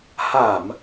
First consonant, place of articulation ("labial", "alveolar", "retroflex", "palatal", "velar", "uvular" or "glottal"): glottal